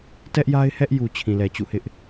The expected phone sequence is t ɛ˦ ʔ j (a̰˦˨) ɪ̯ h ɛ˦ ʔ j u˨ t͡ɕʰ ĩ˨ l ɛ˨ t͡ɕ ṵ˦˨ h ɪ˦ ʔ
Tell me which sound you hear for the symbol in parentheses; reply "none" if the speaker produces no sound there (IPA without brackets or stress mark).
a˦